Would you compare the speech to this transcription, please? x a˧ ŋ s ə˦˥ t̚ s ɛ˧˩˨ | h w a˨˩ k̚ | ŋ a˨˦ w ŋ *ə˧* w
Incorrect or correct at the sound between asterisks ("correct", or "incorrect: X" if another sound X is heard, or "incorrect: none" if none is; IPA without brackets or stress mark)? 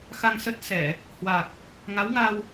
incorrect: a˧